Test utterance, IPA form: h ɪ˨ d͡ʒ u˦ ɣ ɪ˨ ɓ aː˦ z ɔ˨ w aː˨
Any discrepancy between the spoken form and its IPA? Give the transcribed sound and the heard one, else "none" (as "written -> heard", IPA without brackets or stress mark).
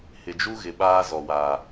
none